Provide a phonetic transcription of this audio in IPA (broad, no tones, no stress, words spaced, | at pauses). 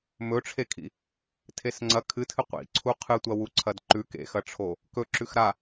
mɵʈ͡ʂʰekʰḭ | tʰesŋ͡ǀɐ kʰɨtʰɨ qʷḭǀʰu qʰɨtʷɐ wuǀʰɐdǃʉk ḛxɐʈ͡ʂʰo | kɵǁʉx ɾa